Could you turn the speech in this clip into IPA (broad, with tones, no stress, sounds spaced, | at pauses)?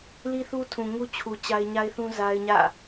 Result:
l i˦ θ u˦ tʰ ũ˨ ŋ u˦ t͡ɕʰ u˨ t͡ɕ a˦ ɪ̯ ɲ a˦ ɪ̯ θ ũ˦ z a˦ ɪ̯ ɲ ä̰˦˨